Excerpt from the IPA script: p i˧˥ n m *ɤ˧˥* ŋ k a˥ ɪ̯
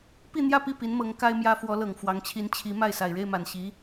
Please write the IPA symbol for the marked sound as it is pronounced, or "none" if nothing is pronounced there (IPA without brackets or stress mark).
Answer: ɤ˧˥